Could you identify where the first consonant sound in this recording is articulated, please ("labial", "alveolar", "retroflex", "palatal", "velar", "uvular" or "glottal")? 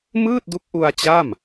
labial